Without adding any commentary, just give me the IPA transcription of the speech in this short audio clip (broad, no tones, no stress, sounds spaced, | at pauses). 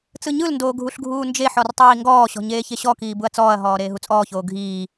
t͡s ɯ ɲ ɯ l n d oː ɡʱ u ɬ ɡʱ uː n d͡ʒ e ħ ɔ r tˤ iː ŋ ɡ ɔː ɕ ɔ̤ ɲ eː ç e ɕ ɔ k iː b u ɐ̯ t͡s ɔː ɐ̯ ɦ ɔː ɾ eː ɦ u t͡sʼ ɔː ç oː ɡʱ iː